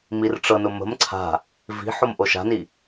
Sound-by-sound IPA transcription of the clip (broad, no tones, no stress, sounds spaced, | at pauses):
m i r ʈ͡ʂ ɤ n ʊ m ə̤ m ǀʰ a̤ | v i̤ ħ o m ʔ o ʃ a̤ n i